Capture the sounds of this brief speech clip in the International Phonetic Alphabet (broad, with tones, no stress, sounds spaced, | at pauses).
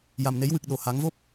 j a˨˩ m n e˨˩˦ j w ɨ˨˩ k̚ ɗ o˨˩˨ h a˨˩˦ ŋ v o˦˥ p̚